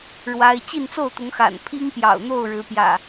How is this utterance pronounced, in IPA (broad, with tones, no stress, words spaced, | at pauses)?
ɻwa˦ɪ̯ t͡ɕi˥˨nt͡so˥˨ʊ̯t̪ʊ˨˦ŋxa̰˨˩n pʰi˦ŋpjɑ̰˨˩ʊ̯ n̪o˥˨ʊ̯ɻɻ̩˨˦pjä̰˨˩